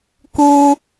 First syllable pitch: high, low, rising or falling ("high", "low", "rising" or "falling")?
high